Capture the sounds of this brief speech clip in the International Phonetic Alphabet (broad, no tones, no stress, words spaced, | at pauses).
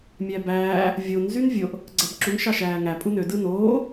mʲæbæː | vʲon zynvʲoʔ | ɡ͡ǀæbǁuŋ ʃɑʃæːŋæ pʼunø dɯnoː